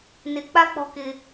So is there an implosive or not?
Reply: no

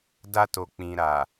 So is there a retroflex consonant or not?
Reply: no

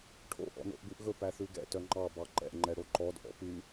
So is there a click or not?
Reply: yes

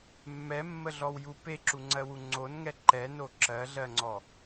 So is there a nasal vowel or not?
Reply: no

